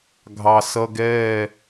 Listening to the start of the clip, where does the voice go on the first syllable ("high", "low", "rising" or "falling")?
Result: low